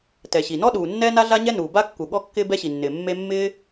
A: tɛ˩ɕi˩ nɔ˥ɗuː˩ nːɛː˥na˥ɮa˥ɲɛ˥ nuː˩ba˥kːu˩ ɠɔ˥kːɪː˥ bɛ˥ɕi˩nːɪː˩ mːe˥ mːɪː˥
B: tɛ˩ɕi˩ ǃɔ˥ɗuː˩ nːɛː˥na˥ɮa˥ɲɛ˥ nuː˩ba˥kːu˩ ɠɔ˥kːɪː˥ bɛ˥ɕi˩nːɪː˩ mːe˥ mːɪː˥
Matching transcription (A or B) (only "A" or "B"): A